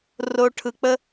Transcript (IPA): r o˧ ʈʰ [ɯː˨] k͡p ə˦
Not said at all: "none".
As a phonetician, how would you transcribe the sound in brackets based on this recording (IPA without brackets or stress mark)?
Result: ɯ˨